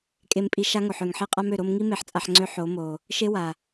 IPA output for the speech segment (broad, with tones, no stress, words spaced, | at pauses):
kʼe˧mpʼi˧ ʃa˦ŋo˨ħ ø˨ŋħe˦qʼa˦m ø˨ɾo˧mŋi˦ me˧ħt͡sʼa˧ħŋ͡ǀø˦ ħo˨˦mo˨ | ʃe˦ wa˨